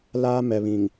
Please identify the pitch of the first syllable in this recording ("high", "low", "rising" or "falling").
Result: high